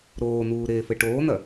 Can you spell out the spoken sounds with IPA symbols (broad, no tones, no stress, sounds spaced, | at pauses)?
ɾ oː n̪ uː ɾ eː f ɘ ʈ oː n̪ ɐ